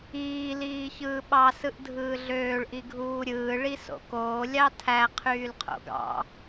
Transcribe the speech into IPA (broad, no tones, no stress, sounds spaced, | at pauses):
iː l iː ç ɯː ɓ ɑ s ɯ ʔ dʱ ɯː ɮ øː ɭ ʔ i ɡʱ uː ɾʲ ɯː ɭ i s o̰ k oː lʲ ɑ tʰ æ qʰ yː l qʰ o̰ ɡ ɑ̰